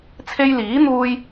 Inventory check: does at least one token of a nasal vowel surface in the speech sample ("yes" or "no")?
no